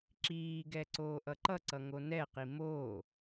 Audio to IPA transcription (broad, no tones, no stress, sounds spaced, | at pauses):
ǁ iː ɡ ɛ ǀ oː ʔ ʌ ǃ ʌ ǀ ʌ ŋ o n ɛ q i m oː